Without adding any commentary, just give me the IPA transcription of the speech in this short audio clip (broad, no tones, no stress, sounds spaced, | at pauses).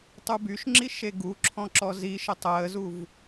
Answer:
tˤ u b y ʃ ŋ͡ǁ i ʃ e ɡ u ǁʰ ɔ̃ ǁ ɔ z i ʃ ə tˤ əː z u v